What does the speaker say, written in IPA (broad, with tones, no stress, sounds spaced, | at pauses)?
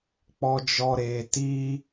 k͡p ɔ˦ d͡ʒ ɔ˦ ɾ e˧ t i˦